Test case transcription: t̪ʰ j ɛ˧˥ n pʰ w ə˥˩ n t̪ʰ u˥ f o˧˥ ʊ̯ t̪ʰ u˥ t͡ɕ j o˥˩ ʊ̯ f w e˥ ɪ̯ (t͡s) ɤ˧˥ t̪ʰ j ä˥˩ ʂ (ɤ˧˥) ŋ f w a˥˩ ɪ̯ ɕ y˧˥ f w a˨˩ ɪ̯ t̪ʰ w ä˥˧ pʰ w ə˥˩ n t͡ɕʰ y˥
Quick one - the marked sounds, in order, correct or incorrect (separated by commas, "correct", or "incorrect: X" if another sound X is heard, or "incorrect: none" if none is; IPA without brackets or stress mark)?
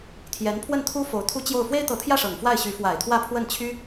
incorrect: t̪, incorrect: ɤ˨˩